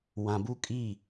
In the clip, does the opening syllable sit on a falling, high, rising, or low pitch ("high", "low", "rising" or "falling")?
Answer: low